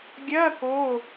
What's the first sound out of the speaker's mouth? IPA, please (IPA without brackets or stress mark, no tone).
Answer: ɡʲ